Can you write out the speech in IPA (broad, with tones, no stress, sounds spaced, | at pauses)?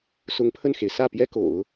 s ʊ˧˥ ŋ pʰ ə˥˩ n x e˩ ɪ̯ s ä˥˩ p j ɛ˥ k o̰˨˩˦ ʊ̯